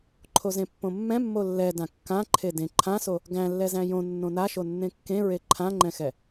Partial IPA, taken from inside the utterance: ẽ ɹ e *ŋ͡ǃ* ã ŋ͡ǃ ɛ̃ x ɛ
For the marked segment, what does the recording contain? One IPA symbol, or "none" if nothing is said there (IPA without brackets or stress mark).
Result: ǃʰ